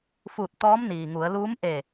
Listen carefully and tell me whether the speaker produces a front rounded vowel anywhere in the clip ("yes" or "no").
no